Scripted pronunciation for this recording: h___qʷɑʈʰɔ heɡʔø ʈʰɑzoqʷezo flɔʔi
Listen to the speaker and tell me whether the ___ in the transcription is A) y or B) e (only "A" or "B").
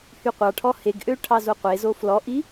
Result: A